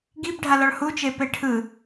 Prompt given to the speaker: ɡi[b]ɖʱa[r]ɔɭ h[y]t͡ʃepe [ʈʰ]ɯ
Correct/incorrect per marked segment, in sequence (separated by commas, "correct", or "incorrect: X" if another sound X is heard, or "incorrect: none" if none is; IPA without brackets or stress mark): correct, incorrect: l, incorrect: u, correct